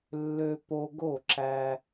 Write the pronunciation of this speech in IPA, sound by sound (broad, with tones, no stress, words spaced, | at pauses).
lːø˧ po˧ɡo˥˩ ǁæ˧